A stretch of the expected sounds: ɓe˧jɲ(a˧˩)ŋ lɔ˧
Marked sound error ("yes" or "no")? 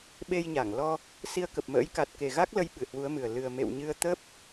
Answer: no